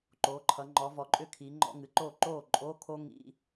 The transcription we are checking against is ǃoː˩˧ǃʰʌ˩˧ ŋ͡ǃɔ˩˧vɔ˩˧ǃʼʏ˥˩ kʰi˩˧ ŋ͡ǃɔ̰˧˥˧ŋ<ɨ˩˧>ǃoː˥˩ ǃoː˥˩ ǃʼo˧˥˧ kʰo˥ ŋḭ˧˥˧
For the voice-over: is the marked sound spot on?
yes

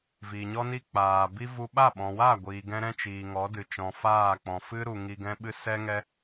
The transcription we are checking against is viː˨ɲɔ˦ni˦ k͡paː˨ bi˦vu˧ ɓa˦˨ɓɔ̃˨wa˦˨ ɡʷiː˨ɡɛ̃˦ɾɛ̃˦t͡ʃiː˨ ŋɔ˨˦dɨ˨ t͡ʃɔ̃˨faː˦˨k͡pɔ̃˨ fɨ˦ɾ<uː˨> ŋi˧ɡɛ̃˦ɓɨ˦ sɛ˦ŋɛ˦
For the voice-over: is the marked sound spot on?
no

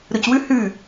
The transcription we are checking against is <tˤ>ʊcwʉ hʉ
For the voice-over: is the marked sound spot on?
no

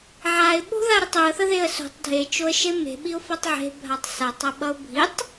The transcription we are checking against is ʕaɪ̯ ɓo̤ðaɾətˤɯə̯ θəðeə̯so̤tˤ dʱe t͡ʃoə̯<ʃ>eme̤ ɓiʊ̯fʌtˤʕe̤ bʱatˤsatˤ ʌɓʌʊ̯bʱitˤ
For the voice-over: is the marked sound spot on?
yes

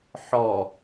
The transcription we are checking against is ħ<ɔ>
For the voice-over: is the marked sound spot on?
yes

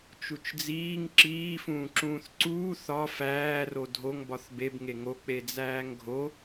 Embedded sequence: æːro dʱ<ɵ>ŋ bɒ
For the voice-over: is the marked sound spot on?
no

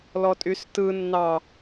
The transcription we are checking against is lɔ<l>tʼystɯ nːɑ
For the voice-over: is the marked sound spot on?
no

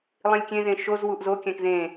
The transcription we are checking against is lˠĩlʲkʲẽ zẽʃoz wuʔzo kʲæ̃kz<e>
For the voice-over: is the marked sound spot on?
no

